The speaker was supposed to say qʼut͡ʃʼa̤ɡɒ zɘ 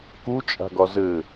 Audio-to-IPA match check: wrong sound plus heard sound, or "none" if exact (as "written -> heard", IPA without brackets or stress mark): qʼ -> k